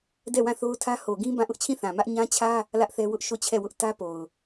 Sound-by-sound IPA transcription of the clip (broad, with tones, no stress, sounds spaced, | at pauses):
d ɛ˦˨ w ã˦˨ θ o˦ ʊ̯ tʰ ä˦ h o˨ ɡ ĩ˦ b ã˦˨ ʔ ʊ˦ ʔ t͡ɕʰ ĩ˦˨ θ ã˨ m ä˦ ʔ ɲ ã˦ t͡ɕʰ ä˦ | l ä˦ ʔ θ ɛ˦ w ʊ˦ ʔ ʃ o˦˨ t͡ɕʰ ɛ˦˨ w ʊ˦ ʔ t ä˦ p o˨ ʊ̯